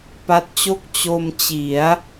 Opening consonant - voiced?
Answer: no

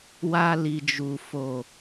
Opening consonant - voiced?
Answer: yes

